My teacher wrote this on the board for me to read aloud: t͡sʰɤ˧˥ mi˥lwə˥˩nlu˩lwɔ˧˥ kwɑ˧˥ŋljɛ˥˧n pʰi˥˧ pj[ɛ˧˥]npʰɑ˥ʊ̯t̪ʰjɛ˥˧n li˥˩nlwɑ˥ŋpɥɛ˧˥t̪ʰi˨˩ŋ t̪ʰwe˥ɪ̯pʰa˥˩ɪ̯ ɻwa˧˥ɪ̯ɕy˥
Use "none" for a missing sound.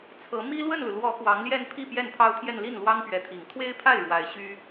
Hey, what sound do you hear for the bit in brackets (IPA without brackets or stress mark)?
ɛ˥˩